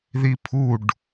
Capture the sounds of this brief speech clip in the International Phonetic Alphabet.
ð i pʰ u ɖ

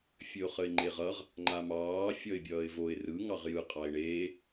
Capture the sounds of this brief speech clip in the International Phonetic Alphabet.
fʲ ɘ ʊ̯ χ ə ɪ̯ ŋ͡ǃ e ʁ ʌ ʁ | ŋ͡ǃ a m ɑː fʲ ʌ ɪ̯ bʲ ʌː ɪ̯ v o ɪ̯ r ɯ ŋ ɑ ʁ j ɯ qʼ ɑ ɪ̯ ɳ eː

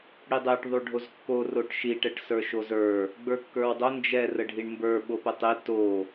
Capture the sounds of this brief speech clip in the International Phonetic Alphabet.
ɽ i dˤ ɛ ʈ ðˤ u ɖʱ o z kː o r o ʈ ʃ i ʈ ɛ ʈ s ə˞ ʃ o z ə˞ | ɡ͡b ə˞ kː ə˞ w dˤ o n d͡ʒ ɛ r ə ɖʱ i ɳ m b ə˞ ɓ o p ə tˤ e t o

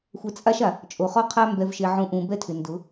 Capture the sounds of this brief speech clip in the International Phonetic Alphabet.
xʷ ɛ˨ t͡sʼ a˦ ʃ a˨ | t͡ʃʼ o˨ χ ɔ˦ qʰ a˦ m b ɛ˨ v ʃ e˨ ʕ ũ˨ ʔ ũ˨ b ɛ˦ tʰ ɪ˨ n d ʊ˨˦

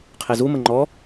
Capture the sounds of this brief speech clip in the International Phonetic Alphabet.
qʰ e z u m ə ŋ͡ǃ ɔ

